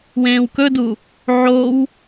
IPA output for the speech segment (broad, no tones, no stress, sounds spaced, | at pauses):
w ẽː w k ɵ d u | ʕ o w